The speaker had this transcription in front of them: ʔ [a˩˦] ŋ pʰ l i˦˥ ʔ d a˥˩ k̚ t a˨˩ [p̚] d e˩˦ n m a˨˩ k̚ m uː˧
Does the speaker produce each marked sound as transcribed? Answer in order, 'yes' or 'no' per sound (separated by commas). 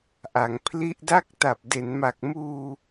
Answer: yes, yes